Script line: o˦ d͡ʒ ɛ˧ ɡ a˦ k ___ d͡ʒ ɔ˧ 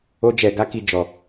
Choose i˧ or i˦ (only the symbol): i˦